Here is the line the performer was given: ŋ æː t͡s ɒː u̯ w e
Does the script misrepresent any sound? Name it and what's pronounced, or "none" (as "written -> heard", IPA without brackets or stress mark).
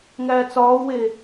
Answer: none